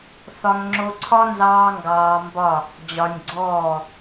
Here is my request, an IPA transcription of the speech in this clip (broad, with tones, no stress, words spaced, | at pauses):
θɒ˧ŋŋ͡ǁo˧ǀʰɒ˦ nzɑː˦ŋɡɑː˧mbɒ˦˨ | d͡ʑɒ˧nʲɡ͡ǀɔː˦˨